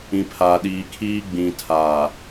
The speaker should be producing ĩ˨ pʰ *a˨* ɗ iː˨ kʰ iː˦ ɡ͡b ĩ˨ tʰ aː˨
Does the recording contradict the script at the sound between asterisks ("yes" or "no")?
yes